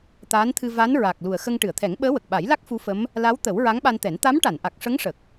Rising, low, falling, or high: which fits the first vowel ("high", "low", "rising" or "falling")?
rising